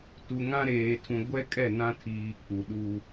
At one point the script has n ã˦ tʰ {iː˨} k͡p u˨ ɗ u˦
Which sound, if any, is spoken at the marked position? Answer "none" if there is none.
iː˨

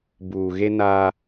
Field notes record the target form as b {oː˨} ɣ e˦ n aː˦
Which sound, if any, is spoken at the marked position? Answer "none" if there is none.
uː˨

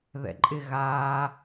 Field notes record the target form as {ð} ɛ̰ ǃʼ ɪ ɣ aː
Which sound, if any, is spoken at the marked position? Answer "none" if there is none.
ð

